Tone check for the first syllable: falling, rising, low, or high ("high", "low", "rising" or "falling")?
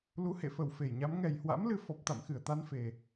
rising